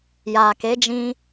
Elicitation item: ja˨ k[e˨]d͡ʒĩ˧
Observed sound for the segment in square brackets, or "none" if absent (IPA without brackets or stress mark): e˨˦